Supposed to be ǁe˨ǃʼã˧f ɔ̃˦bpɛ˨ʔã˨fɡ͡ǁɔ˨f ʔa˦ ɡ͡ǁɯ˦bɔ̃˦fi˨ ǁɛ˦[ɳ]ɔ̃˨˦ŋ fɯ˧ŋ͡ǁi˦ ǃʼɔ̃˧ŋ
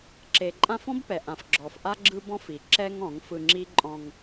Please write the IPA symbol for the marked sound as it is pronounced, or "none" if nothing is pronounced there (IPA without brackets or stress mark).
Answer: ŋ